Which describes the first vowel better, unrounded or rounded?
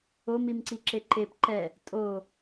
rounded